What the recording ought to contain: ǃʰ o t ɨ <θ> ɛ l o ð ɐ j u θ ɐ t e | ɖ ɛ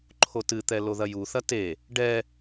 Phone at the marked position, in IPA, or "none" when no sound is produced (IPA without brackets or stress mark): t̪